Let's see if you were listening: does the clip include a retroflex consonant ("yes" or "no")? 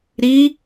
no